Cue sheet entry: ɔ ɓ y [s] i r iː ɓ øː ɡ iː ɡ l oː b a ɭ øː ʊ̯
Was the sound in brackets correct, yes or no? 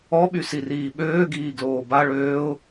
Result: yes